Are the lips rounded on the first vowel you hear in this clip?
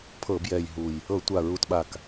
no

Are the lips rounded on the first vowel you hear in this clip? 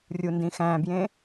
yes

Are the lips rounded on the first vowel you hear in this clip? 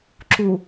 yes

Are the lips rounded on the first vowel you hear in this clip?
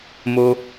yes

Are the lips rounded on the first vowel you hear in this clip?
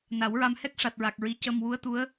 no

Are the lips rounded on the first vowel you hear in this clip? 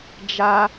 no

